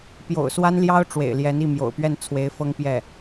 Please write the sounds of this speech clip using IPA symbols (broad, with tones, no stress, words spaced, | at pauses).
pjo̰˨˩ʊ̯swa˥nljɑ˥ʊ̯ ʈ͡ʂwḛ˨˩ɪ̯ljɛ˧˥ni˥˩ mjo̰˨˩ʊ̯pɥɛ˥˩n t͡sʰwe˧˥ɪ̯fɤ˥ŋ pjɛ˥˩